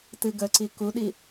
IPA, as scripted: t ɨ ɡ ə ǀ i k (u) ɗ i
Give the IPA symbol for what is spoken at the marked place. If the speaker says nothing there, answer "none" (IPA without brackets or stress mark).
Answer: u